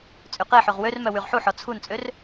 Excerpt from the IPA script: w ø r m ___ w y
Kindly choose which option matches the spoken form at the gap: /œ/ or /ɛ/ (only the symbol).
œ